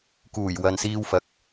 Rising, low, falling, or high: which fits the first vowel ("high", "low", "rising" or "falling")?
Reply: low